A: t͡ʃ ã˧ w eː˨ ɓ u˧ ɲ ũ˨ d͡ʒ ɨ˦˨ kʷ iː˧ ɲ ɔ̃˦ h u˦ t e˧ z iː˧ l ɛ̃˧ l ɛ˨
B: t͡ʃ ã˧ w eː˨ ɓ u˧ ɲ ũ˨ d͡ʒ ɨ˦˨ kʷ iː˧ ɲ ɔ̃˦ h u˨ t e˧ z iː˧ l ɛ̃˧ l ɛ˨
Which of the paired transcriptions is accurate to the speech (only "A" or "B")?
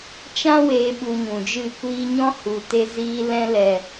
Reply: B